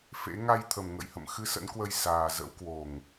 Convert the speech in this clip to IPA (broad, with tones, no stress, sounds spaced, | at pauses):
f ḛ˧˥ ŋ a˧ j t̪ʰ ə˨˩ m ŋ ə̰˧˨ j h ə̰˧˨ m x ɨ˧ s ə̰˧˥ n k w ə˧ j s aː˨˩ z ə̰˧˥ w k w o˨˩ ŋ